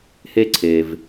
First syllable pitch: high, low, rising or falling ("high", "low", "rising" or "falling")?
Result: high